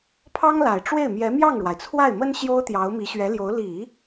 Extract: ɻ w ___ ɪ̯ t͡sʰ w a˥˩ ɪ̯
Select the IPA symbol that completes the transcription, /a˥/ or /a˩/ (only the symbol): a˩